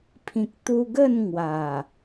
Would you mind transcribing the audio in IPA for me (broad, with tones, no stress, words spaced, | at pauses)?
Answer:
pʰĩ˨k̚t̪u˧ɡə˥˧n ŋwa˨˩